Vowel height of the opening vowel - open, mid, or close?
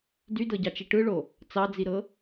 close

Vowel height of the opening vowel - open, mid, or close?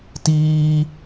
close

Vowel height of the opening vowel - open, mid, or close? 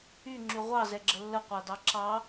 close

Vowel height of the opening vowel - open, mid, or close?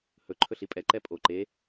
mid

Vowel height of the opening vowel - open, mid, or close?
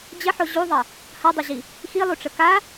mid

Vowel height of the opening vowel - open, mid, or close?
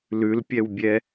close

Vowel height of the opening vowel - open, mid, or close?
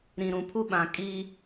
close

